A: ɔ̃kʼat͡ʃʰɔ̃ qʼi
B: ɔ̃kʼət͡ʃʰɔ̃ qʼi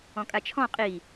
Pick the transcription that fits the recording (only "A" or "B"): A